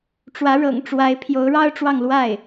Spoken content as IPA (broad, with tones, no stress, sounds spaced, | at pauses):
ʈ͡ʂ w ä˧˥ ɻ ɤ̰˨˩ ŋ ʈ͡ʂ w a˧˥ ɪ̯ pʰ j o˧˥ ʊ̯ ɻ ɑ˥ ʊ̯ ʈ͡ʂ w ɑ˥˧ ŋ l w a˥˩ ɪ̯